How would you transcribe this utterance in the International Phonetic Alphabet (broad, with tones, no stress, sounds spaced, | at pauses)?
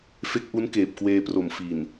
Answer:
f e˦˥ k̚ ʔ u˦˥ n k eː˨˩ p̚ k w eː˧ p r o˨˩ m f i˨˩ n